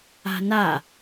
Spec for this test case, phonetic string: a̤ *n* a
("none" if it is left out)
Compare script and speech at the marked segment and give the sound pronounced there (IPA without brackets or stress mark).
n